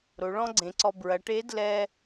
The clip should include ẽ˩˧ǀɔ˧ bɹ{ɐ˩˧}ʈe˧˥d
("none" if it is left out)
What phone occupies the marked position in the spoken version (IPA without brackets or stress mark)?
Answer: ɐ˩˧